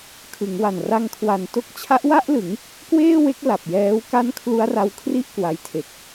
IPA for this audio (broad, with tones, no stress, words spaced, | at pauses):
kʰɯ˩˦ŋwa˨˩n ra˧ŋkʰwa˨˩nto˦˥k̚ t͡ɕʰa˦˥ʔwa˥˩ʔlɯ˩˦ŋ | kweː˥˩we˦˥k̚ la˨˩p̚jɛː˦˥w ka˥˩n kʰlu˦˥a̯ra˧wkʰri˥˩ʔ kwa˧jtʰe˨˩k̚